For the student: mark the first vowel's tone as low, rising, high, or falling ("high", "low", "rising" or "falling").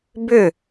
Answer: falling